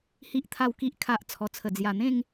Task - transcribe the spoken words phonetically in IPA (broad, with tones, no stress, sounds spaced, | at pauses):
h i˨ ʔ t̪ʰ a˨˩ w k i˨ ʔ kʰ a˨ ʔ t͡sʰ ɔ˨˩ t͡sʰ ə˨˩ d͡z j a˨˩ n̪ ẽ˥˧ ŋ